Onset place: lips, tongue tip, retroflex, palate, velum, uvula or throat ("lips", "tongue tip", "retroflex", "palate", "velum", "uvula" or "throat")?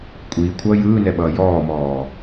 velum